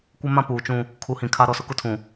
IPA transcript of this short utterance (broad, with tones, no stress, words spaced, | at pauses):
kʷɪ˦mã˦puː˨t͡ʃũ˦ | kʰu˨˦hĩ˨ kʰa˦ ɾɔ˦˨sʊ˦kʊ˦ tʰũ˨